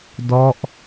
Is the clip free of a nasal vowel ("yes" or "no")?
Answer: yes